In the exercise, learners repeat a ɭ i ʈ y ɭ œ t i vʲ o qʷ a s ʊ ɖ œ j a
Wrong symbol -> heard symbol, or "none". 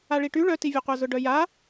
s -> z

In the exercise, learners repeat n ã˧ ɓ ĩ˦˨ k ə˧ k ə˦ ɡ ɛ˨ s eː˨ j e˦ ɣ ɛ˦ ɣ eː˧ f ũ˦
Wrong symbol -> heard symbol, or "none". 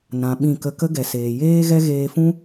e˦ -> eː˦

